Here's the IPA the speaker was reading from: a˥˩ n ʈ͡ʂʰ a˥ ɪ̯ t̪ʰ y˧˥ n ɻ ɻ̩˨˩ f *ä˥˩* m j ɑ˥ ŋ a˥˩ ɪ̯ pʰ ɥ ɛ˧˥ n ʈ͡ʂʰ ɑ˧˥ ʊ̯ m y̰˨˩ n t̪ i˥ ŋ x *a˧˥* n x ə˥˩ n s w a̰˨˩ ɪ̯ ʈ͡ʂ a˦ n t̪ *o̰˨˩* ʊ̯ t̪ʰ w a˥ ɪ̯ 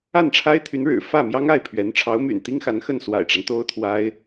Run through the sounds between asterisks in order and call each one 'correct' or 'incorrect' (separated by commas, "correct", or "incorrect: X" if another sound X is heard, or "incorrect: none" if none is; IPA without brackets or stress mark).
correct, correct, incorrect: o˥